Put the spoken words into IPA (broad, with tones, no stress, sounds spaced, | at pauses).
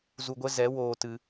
z u˧ ɡʷ ɛ˦ z ɛ˨˦ w oː˧ t ɨ˧